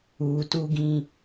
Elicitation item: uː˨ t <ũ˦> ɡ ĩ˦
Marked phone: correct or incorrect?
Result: incorrect